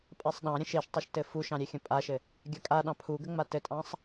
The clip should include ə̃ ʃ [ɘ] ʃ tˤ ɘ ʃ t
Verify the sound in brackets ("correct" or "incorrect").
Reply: incorrect